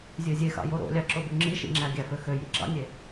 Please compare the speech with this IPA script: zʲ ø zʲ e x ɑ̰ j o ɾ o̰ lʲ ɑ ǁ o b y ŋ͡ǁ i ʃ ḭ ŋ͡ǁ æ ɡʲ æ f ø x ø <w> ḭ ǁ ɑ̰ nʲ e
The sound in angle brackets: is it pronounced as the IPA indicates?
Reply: no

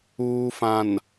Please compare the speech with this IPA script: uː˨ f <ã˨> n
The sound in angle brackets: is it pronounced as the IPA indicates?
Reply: yes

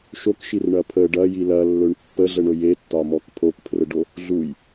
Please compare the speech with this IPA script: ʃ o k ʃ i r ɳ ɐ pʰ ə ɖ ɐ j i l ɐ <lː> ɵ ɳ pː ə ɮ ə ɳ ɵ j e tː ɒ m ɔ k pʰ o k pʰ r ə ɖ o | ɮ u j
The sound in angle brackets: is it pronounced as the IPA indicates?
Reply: yes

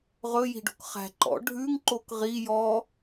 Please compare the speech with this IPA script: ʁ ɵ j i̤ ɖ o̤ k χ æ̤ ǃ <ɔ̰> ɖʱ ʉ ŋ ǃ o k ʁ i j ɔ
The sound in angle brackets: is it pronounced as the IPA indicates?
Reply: yes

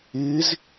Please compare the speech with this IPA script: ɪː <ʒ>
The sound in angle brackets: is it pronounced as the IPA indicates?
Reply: no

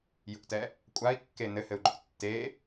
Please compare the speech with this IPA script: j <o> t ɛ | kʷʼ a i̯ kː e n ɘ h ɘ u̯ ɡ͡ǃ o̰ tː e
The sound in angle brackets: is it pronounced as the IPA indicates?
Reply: no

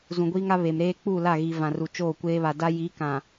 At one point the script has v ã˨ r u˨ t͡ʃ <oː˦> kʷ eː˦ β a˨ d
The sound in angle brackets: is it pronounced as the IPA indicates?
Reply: no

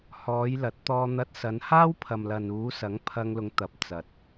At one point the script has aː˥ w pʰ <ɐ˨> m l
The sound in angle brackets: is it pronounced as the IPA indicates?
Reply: yes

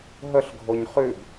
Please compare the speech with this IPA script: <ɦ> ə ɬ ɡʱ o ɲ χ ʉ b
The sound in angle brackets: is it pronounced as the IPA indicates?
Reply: yes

